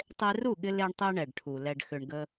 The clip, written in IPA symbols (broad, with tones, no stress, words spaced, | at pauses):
tˤe˧ru˦˨ɠɪ˧ le˦ɳtˤɛ˦ ɳɛ˨ɖʈʰu˨ lɛ˨ɖxʏ˨ɳɡə˧